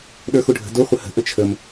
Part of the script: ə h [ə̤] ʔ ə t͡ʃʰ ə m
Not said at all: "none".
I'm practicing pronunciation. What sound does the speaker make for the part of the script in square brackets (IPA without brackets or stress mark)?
ə̤